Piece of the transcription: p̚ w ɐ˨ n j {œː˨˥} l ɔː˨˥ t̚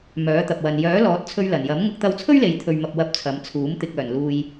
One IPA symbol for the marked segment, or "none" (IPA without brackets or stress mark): œː˨˥